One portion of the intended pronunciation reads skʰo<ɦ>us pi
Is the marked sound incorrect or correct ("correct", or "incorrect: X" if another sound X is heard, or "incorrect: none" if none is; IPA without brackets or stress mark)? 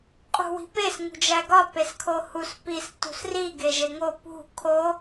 incorrect: h